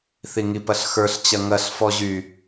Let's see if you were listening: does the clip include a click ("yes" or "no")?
no